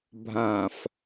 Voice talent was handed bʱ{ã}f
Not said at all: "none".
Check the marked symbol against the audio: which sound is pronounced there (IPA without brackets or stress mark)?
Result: ã